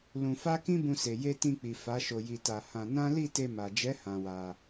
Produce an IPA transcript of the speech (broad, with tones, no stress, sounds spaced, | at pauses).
l ũ˧ f a˦ k ĩ˦ b ũ˧ s e˨ j e˧ t ĩ˧ k͡p i˨ f a˨˦ ʃ o˧ j i˧ t a˧ h ã˧ n ã˦ l i˦˨ t e˧ m a˨ d͡ʒ ɛ˨˦ h ã˧ w a˧